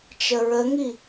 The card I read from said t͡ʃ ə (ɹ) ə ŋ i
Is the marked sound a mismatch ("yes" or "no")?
no